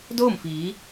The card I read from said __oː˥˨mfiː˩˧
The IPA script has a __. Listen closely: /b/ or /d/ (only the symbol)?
d